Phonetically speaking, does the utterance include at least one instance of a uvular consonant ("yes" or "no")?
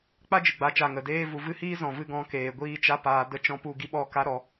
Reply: no